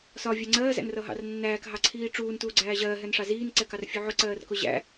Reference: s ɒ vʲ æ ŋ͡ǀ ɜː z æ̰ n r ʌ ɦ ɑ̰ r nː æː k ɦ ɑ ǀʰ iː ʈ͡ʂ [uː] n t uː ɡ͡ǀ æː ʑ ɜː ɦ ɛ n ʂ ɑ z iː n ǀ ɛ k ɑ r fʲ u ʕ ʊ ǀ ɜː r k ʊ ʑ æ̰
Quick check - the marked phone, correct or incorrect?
correct